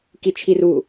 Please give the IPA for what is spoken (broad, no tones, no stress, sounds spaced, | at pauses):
k i t͡ʃʰ i r u